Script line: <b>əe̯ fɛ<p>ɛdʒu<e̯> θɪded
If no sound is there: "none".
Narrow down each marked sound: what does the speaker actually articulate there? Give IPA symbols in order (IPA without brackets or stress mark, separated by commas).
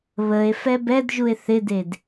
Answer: β, b, e̯